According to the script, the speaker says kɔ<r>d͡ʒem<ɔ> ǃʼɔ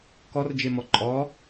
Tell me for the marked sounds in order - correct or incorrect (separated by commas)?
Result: correct, correct